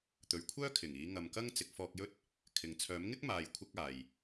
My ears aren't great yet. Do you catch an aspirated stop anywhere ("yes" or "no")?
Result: yes